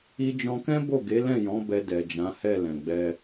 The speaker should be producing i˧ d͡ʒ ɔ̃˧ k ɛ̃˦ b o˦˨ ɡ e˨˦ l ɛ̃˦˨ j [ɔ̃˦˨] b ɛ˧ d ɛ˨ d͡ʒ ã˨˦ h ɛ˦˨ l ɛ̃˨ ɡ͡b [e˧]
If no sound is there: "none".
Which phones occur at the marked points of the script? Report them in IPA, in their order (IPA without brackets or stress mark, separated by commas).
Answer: ɔ̃˨˦, ɛ˧